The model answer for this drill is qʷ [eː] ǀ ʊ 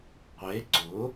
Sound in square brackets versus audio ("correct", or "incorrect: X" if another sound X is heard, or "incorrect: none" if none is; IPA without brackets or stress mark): incorrect: e